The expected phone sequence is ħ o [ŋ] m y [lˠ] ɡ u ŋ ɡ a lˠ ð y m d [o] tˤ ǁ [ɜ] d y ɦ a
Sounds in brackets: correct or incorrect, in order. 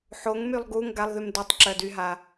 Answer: correct, correct, correct, correct

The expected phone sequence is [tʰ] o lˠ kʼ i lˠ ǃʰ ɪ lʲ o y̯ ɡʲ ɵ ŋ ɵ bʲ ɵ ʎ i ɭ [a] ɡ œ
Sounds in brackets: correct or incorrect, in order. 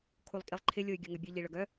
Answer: incorrect: kʰ, incorrect: ə

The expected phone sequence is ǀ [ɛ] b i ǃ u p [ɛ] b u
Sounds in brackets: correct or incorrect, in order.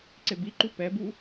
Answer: incorrect: e, correct

